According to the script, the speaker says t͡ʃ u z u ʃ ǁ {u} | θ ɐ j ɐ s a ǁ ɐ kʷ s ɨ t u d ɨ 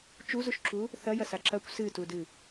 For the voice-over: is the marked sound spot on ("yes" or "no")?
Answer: yes